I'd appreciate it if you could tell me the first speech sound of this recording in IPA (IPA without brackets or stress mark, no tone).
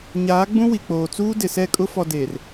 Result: ɲ